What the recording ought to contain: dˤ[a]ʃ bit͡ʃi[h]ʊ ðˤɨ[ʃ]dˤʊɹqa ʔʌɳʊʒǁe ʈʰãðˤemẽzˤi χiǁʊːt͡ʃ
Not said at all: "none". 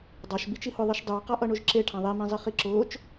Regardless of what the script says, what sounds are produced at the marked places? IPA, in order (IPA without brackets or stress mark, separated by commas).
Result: a, h, ʃ